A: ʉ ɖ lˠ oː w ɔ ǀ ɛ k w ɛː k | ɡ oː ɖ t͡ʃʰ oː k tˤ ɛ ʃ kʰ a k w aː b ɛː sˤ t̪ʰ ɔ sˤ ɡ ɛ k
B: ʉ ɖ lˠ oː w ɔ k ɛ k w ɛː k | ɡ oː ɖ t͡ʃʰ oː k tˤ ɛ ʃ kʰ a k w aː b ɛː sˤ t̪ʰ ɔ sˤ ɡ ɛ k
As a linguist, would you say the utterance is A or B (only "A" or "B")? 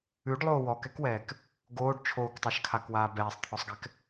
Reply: B